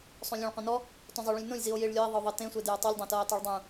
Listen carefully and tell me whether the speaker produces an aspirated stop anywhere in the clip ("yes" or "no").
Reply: no